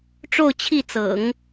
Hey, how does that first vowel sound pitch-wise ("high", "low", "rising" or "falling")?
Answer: falling